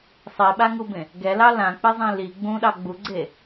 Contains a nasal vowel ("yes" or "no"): yes